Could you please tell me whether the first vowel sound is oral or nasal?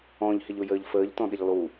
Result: nasal